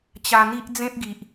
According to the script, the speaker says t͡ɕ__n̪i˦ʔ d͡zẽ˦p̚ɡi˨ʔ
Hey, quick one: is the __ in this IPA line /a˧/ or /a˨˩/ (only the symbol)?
a˧